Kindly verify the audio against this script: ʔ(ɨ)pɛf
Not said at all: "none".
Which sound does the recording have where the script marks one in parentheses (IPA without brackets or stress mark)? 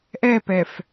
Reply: ɛ